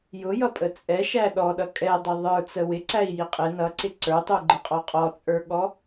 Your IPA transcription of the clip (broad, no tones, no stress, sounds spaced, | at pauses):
j ʊ j ʌ pʼ ə t͡sʼ ɛ ʃ æ ɗ ɔ ɗ ʌ kʼ ɛ dˤ ʊ ðˤ ə˞ t͡s ə w ɪ ǀ æ i̯ j i qʼ ɪ n ʌ ǀ ɪ ǀ ə˞ tˤ u ɡ͡ǃ ə qʼ ɔ qʼ ɔ t͡sʼ ə˞ ɠ ɔ